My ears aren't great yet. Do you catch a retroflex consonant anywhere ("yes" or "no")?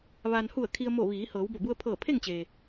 no